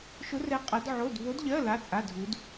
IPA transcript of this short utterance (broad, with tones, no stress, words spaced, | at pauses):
ʃʊ˧˥rɛ˧˥ qʼʌ˧˥dʕo˧˥˧d vo˧˥dʎɜ˧˥˧ la˧˥˧t͡sʼa˧˥˧dʱu˧˥d